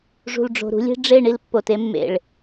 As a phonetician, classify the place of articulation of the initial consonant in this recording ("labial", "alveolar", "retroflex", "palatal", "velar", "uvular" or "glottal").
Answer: retroflex